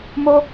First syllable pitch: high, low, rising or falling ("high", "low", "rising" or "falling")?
high